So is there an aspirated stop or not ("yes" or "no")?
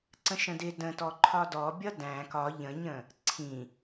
yes